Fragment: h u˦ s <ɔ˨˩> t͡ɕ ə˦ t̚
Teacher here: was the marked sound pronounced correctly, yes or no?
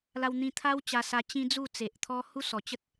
yes